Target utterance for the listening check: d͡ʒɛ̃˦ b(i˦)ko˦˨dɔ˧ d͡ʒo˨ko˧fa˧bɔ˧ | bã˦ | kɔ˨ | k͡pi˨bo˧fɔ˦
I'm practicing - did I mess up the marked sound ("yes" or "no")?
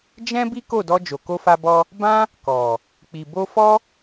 no